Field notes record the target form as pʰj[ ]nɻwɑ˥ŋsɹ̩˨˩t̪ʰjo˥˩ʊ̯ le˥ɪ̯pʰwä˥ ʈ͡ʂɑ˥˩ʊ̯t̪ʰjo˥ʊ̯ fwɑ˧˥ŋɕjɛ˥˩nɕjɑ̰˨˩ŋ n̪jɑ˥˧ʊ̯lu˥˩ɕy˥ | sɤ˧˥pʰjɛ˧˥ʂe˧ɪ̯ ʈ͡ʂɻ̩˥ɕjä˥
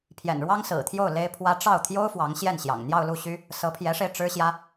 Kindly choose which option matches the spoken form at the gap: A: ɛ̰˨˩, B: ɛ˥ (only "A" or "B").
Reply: A